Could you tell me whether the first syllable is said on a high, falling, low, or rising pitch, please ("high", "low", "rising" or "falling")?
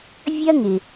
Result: high